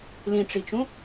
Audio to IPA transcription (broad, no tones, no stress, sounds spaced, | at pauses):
l ĩ ʈ͡ʂ i t͡ʃ ũ